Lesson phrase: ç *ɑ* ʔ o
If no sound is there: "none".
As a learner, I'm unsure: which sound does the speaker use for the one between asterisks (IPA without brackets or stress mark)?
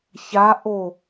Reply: a